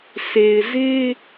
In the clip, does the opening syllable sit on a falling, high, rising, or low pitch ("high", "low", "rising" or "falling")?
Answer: low